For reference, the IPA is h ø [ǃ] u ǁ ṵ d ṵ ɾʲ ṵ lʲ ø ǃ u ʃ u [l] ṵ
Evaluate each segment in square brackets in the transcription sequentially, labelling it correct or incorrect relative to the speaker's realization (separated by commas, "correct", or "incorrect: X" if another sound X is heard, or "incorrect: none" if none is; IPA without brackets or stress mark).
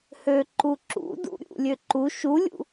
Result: correct, incorrect: lʲ